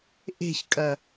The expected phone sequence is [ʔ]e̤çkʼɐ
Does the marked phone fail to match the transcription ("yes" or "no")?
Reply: no